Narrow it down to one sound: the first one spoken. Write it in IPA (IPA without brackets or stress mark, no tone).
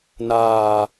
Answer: n